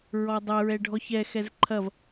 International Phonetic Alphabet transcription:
ɹ ɔ dˤ ɛ ɹ ɛ ɖʱ ɔ ç ɛ x ɛ z ǃʰ ɐ v

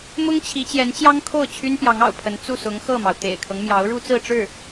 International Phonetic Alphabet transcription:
m ʊ˥ ŋ t͡ɕʰ i˧˥ t͡ɕ j ɛ˧˥ n t͡ɕ j ɑ˥ ŋ kʰ o˥˩ ʊ̯ t͡ɕʰ y˥ n p j ɑ˧˥ ŋ ɑ̰˨˩ ʊ̯ pʰ ə˧˥ n t͡s u˥˩ s ʊ˧˥ ŋ x ɤ˥˩ m ɑ˩ ʊ̯ t̪ ḛ˨˩ ɪ̯ kʰ ɤ˦ ŋ m j ɑ˧˥ ʊ̯ ɻ u˥ t͡s ɹ̩˥˧ ʈ͡ʂ ɻ̩˥˩

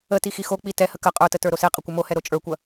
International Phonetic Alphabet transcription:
ə t i x i x o k͡p i t ɛ h ə k ə qʼ ə˞ t ə t ə˞ ɾ o s e qʼ ə kʷ ə m o h ɛ ɾ o t͡ʃʼ ə˞ kʷ ɐ

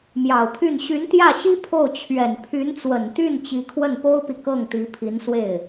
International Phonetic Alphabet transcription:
m j ɑ˨˩ ʊ̯ pʰ y˥˩ n ɕ y˧˥ n t̪ j ä˥˩ ɕ i˥ pʰ o˥˩ ʊ̯ t͡ɕʰ ɥ ɛ˨˩ n pʰ y˧˥ n t͡s w ə˨˩ n t̪ y˥˩ n t͡ɕ i˧˥ kʰ w ə˥˩ n p o˥ ʊ̯ p i˨ k ɤ˥˩ ŋ t̪ i˧˥ pʰ i˧˥ n s w e˥˩ ɪ̯

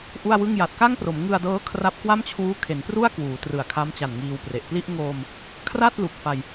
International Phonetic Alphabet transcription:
ʔ u˥˩ a̯ w ɯ˥˩ ŋ j a˨˩ t̚ k a˥˩ ŋ p r o˩˦ m ŋ ɯ˧ a̯ d ɤː˦˥ kʰ r a˦˥ p̚ k w a˥˩ m t͡ɕʰ uː˦˥ kʰ e˩˦ n p r u˥˩ a̯ k w uː˩˦ t r ɯ˨˩ a̯ kʰ a˦˥ m t͡ɕ a˨˩ n ŋ iː˧ w p r e˨˩ ʔ p l i˥˩ ʔ ŋ oː˧ m | kʰ r a˥˩ t̚ l u˨˩ k̚ f a˧ j

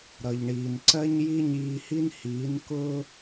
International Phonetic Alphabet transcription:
ɾ ʌ˩ ʎ ɳ iː˩ n ǀ ɜ˥ ɲ j i˥ ɲ iː˧ h i˥ n h iː˩˥ n k ʊː˥

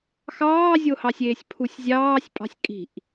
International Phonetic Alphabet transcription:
x ɑː zʲ o h ɑ sʲ eː sʲ pʰ u sʲ zʲ ɑː sʲ pʼ ɑ̤ sʲ kʼ i̤ ʔ

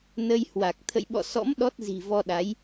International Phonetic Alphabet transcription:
n ə˧ j h w a˨˩ k̚ t̪ʰ ə̰˧˨ j ɓ ɔ̰˧˨ s ɔ̰˧˥ m ɗ ɔ˦˥ t̚ z i̤˨˩ v ɔ˧ ɗ a˨˦ j

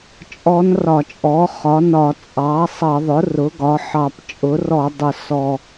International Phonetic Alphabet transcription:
t͡ʃʼ ɔ˧˥ n r ɒ˧˩˧ t͡ʃʼ ɔ˩˥ χ ɒ˩˥ n ɒ˧˩˧ t͡sʼ ɑ˩˥ sˤ ʌ˧˩˧ ðˤ ʊ˩˥ r ʊ˩˥ ɡ ɒ˩˥ ħ ɑ˨˩ p t͡ʃʼ ʊ˩˥ r ɔ˧˩˧ dˤ ʊ˨˩ s ɔ˨˩

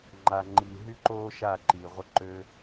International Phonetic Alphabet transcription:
ŋ͡ǃ a˨ ŋ͡ǃ iː˨ ɦ y˦ ǃ oː˦ ʃ a˦˨ ǃ iː˨ ʁʷ ə˧ ǃ øː˧

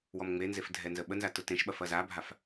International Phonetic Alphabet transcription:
w ɔ m ŋ͡m e n z e f dʱ ɛ n z ə ɓ ə n z a t ʊ t ẽ ʃ ɓ ɐ f ɐ z a bʱ a f

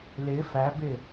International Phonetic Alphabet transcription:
l ɪ f æ b ɪ

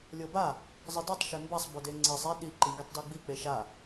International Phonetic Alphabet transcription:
lʲ ɤ b a | zˤ ɯ d i tˤ ʃ e m b a sˤ b o d e ŋ͡ǀ i sˤ i ɗ i ǃ i ŋ ɡ i tˤ d ɔ ɡ͡b i k͡p e ʃ a

